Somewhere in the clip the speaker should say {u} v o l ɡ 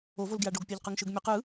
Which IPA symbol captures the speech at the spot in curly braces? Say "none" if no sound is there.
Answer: o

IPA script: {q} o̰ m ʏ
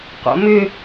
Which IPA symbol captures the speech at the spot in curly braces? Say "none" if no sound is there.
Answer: q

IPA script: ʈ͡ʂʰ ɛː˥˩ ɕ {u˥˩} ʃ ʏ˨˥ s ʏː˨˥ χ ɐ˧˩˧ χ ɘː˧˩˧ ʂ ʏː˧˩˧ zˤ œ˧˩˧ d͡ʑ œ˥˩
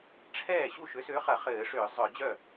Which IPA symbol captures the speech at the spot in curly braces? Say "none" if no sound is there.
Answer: u˥˩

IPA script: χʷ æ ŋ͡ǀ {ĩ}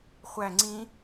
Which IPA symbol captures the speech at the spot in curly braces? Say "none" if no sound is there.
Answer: ĩ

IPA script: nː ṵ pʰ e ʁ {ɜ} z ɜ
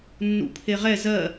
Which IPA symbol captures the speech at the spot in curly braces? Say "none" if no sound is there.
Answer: ɛ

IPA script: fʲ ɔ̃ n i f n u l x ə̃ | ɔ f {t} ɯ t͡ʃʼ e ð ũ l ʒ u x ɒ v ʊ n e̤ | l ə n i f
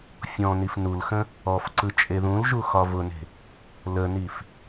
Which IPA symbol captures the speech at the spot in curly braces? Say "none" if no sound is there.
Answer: ǀ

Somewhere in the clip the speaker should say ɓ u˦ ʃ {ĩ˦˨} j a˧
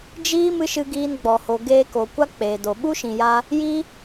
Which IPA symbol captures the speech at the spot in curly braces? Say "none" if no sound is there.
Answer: ĩ˨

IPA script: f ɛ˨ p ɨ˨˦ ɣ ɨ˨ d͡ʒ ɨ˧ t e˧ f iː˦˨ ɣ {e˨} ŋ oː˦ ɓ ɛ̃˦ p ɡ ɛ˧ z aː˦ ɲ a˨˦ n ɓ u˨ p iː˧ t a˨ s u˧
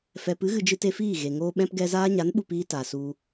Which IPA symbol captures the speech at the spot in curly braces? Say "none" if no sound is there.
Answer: e˨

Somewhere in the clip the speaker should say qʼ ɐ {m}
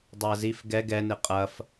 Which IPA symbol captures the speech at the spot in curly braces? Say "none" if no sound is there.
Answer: f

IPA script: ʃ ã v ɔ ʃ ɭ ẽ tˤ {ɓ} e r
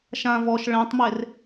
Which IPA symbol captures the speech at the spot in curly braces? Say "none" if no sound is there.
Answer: m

